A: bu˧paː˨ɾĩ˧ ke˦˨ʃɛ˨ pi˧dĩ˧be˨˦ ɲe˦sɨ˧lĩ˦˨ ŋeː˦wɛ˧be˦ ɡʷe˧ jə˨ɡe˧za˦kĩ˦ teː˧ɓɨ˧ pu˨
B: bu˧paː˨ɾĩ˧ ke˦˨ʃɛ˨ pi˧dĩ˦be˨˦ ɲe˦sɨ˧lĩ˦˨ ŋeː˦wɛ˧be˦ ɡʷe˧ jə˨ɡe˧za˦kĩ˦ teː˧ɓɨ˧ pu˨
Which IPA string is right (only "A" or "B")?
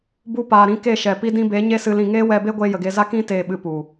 A